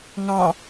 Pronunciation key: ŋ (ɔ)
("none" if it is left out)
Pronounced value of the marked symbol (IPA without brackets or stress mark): ɑ